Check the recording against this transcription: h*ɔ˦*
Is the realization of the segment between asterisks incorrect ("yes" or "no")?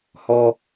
no